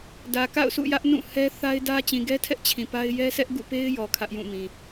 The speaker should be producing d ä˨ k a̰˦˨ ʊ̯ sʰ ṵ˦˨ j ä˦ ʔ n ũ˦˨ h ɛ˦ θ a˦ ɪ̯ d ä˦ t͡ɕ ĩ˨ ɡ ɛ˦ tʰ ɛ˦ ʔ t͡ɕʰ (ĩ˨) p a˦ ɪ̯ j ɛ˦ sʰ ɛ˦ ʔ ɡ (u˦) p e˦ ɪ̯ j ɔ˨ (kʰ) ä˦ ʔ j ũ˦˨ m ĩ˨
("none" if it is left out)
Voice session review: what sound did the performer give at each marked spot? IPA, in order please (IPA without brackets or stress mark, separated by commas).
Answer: ĩ˨, ṵ˦˨, kʰ